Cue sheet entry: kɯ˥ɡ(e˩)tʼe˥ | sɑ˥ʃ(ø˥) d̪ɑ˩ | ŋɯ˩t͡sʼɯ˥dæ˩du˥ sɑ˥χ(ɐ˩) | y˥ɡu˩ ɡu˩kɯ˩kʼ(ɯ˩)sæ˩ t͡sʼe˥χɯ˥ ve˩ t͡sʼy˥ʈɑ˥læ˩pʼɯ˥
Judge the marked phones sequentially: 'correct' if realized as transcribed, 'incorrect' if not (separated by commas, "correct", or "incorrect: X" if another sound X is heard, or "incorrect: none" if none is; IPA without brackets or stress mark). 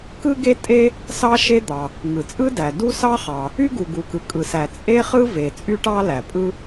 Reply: incorrect: e˥, incorrect: e˥, incorrect: ɑ˩, correct